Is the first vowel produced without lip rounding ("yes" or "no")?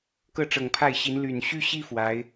yes